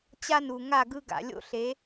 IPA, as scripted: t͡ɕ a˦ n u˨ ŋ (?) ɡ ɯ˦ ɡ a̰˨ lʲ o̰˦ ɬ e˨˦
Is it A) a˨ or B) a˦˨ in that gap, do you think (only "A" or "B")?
B